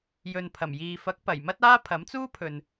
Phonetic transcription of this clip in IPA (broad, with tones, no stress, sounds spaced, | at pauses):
j ɵ˨ n pʰ ɐ˨˩ m j iː˨ f ɐ˨˥ k̚ p ɐ˨˩ j m ɐ˥ t̚ aː˥ pʰ ɐ˨˥ m t͡s uː˥ pʰ ɵ˨ n